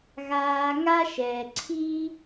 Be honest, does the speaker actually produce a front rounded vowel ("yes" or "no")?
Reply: no